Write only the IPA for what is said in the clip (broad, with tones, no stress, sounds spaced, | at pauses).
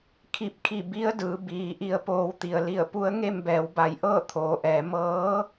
kʰ i˧˩ p̚ kʰ i˧˩ b i˧˥ ə̯ d ɯː˩˧ b iː˩˧ ʔ i˧ ə̯ p oː˧ w t̪ i˩ ə̯ l i˧˩ ə̯ p u˧˥ ə̯ ŋ e˥˨ m b ɛː˩˧ w b a˩˧ j ʔ ɤː˥˨ t̪ʰ oː˩ ʔ ɛː˩˧ m ɤː˧˥